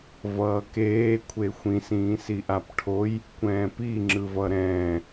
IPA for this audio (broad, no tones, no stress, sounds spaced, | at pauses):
v ʌː k eː kʷʰ e xʷ ĩ s ĩː s i ʔ a p ʈʰ o j | kʷ ɛ̃ː p i ŋ͡ǁ ɯ v ʌ ɾ ɛ̃ː